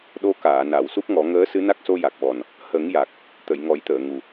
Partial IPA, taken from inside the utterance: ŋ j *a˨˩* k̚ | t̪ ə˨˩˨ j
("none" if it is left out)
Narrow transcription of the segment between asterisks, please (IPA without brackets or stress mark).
a˨˩